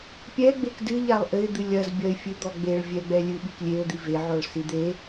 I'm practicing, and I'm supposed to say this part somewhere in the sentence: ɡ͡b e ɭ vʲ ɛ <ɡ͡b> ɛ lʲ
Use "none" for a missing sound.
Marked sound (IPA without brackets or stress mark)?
ɡ͡b